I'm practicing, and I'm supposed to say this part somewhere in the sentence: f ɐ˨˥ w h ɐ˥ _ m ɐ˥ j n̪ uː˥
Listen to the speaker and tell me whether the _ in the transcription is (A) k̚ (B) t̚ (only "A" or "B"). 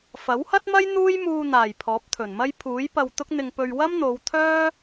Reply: B